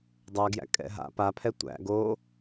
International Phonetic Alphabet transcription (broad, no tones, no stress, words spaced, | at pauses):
dˤæɡjæ̰ kʼɛ̰ɦa̰ pa pʰɛtʷæ̰ ɡo